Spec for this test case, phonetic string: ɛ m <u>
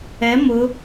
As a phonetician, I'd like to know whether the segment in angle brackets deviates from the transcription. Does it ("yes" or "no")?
yes